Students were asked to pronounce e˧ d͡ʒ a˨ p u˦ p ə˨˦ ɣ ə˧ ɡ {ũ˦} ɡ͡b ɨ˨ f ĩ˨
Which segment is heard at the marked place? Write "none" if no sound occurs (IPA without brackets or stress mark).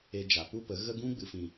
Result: ũ˦